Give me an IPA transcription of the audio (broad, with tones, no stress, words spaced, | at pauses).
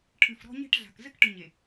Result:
ʈʰɨ˨fɾɔ̤˦ɲe̤˦ʈɮa̤˨k zɘ˦kʈɨ˨ɲe˨